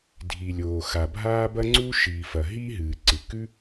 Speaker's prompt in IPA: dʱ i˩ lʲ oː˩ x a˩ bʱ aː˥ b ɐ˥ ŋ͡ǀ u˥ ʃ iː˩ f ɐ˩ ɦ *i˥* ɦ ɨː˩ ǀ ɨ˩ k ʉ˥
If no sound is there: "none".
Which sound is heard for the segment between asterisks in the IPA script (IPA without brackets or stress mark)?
i˥